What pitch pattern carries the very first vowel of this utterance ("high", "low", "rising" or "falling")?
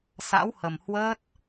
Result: rising